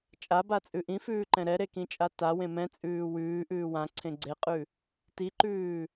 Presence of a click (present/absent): present